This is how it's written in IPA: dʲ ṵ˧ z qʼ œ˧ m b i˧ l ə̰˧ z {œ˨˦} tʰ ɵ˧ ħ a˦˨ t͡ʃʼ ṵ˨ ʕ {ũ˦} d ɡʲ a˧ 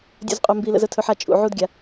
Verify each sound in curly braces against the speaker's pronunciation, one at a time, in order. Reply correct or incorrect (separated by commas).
incorrect, incorrect